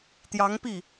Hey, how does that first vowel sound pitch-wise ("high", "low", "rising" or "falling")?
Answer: rising